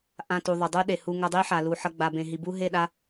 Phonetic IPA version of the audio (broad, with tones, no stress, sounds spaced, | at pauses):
ʔ ã˧ t u˨ ðˤ ə˨ dˤ u˦ ɗ e˨ h u˧ ŋ ʌ˧ dˤ i˦ ħ a˨ l u˨ ħ ʌ˧ ɡ͡b a˨ b ẽ˨ ɦ i˨ b u˦ ɦ e˦˨ ɗ a˦